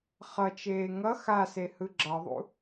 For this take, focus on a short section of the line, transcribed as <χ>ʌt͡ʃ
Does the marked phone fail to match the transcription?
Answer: no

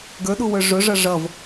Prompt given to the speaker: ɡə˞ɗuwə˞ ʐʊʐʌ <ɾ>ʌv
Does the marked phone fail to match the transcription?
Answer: yes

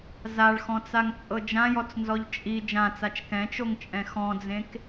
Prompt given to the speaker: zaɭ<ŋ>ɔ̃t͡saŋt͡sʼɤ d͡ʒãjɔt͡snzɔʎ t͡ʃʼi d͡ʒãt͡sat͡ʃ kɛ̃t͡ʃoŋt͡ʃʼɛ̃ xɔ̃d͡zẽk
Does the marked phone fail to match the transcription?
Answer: yes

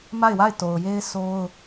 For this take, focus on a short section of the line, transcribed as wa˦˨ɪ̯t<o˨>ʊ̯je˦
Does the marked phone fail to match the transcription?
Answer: no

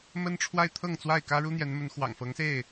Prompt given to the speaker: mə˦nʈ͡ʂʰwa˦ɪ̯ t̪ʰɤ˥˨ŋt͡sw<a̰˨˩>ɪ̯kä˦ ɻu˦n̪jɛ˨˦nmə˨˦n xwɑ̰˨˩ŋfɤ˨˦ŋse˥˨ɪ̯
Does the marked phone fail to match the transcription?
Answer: yes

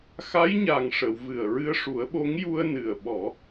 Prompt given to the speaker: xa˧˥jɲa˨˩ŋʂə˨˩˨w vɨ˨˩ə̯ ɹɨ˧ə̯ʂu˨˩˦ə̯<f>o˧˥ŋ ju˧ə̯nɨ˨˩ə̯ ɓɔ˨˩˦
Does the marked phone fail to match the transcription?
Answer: yes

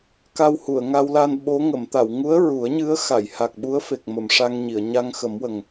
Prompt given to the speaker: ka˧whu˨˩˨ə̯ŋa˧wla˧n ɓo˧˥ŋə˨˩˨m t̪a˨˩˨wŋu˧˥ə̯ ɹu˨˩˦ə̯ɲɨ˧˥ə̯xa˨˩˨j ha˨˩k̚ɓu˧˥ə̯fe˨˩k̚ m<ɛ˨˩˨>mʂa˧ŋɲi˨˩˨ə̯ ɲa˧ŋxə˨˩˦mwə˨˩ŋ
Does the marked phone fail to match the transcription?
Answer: yes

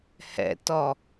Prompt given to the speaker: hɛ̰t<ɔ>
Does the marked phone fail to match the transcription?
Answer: no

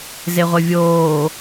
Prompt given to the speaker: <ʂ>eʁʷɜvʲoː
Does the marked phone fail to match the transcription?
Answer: yes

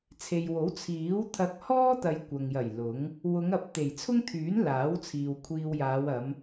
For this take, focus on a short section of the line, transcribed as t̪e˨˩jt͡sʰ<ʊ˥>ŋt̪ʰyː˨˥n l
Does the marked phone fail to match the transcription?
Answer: no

